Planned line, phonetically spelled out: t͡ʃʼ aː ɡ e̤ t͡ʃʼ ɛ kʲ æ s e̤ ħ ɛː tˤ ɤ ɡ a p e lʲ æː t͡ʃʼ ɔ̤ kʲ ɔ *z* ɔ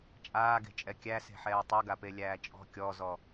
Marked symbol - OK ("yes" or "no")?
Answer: yes